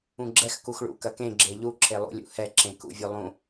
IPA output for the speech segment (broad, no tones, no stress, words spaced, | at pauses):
ũɡ͡ǁɛx kuxɭṵ kɐkẽ ɡ͡ǁeʎu ǁʰelˠṵlʲṵ hɛǁẽ kṵvʲulˠũ